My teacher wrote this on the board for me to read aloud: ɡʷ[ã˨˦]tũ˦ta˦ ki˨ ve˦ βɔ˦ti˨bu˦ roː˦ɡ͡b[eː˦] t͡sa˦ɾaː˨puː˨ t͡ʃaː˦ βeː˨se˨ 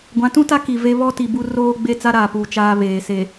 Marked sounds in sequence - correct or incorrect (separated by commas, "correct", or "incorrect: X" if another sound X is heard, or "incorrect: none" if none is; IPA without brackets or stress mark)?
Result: correct, incorrect: e˦